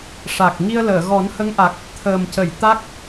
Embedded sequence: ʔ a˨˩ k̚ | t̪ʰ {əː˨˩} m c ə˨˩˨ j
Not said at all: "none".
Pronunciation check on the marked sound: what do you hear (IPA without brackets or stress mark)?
əː˨˩